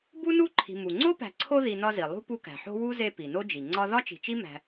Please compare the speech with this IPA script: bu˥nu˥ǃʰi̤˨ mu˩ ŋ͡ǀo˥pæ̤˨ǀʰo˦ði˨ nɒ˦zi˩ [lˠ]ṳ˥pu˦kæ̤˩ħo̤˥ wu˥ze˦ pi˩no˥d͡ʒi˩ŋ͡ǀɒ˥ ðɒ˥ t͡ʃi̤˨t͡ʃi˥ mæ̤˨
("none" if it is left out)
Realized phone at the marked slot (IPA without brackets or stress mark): lˠ